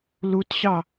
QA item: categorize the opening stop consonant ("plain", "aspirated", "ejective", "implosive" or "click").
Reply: plain